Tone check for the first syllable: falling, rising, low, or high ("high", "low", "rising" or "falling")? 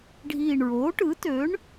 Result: low